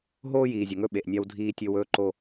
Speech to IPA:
ɦoː˦jiː˨zʲɵ˨ ŋɵ˦ɓe˨ʔnʲa˦w dʱiː˦tʲɵ˦wɵː˦ ǃo˦

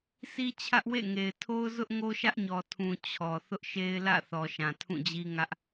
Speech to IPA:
si˦t͡ɕʰä˦ʔwḛ˦˨ŋe˨ɪ̯ tʰo˦ʊ̯zʊ˦ʔ ŋo˦ʃä˦ʔɲɔ˨ tʰũ˨ t͡ɕʰɔ˨ θʊ˦ʔʃe˦ɪ̯lä̰˦˨θɔ˨ ʃã˨tʰũ˦˨d͡ʑi˦ ŋä˦ʔ

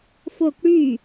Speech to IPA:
fok ɽy

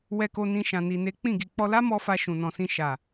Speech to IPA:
wɛ˧ko˧nĩ˧ ʃã˨ni˨ne˨˦ k͡pĩ˦˨ɡi˨ k͡pɔ˧la˦mɔ˧ fa˧ʃũ˨nɔ̃˨sĩ˧ ʃa˨

